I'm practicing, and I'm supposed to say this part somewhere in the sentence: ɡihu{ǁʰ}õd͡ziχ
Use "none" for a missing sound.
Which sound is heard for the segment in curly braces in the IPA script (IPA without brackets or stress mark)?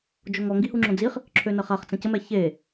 ŋ͡ǁ